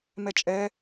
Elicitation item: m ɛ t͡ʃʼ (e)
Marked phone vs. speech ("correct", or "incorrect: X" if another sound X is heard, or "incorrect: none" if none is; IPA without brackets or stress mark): incorrect: ɛ